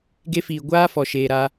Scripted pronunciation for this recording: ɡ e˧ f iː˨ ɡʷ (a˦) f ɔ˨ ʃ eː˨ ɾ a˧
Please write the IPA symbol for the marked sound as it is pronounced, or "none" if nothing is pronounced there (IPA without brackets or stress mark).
aː˦